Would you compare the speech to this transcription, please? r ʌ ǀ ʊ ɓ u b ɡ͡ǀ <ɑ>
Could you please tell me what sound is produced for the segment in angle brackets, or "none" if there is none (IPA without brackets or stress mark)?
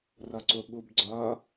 ʌ